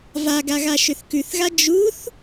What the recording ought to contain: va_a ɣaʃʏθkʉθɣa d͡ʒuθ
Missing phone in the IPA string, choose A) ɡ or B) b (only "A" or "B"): A